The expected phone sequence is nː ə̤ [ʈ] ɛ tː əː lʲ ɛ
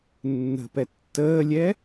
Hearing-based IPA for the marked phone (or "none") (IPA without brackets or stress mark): p